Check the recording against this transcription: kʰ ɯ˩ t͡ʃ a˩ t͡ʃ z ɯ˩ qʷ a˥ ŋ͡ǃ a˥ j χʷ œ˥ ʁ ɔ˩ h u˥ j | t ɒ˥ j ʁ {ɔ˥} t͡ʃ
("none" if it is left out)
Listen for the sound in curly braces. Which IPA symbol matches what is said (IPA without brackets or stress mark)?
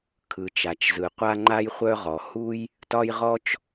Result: ɔ˥